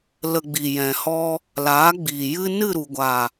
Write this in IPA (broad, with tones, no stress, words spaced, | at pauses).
lə˨ ɡ͡bi˨jɛ̃˨hɔ˦ | laː˨˦ɡ͡biː˨jɨ˦ nɨ˦˨ɾu˨ɡʷa˨